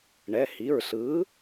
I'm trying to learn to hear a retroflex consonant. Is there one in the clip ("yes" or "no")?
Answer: yes